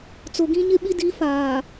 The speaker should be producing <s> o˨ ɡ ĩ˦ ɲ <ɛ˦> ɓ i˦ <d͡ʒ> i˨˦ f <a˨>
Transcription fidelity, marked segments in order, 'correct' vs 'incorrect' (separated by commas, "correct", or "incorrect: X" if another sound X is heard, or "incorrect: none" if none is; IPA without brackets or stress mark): incorrect: t͡s, incorrect: ɪ˦, incorrect: d, incorrect: aː˨